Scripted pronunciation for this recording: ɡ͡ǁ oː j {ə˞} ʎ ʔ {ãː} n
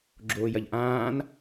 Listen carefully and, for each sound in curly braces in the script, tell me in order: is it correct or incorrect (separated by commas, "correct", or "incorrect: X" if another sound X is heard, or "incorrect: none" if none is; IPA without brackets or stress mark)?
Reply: incorrect: ɐ, correct